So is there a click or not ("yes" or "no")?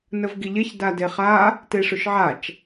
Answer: no